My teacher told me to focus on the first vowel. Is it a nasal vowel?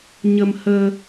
no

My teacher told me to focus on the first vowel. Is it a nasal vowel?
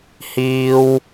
no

